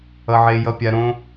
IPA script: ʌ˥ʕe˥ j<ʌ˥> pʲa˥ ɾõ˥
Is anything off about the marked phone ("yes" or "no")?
no